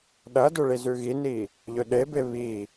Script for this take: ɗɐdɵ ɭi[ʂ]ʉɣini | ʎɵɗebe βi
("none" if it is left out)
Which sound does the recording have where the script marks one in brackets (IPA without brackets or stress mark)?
z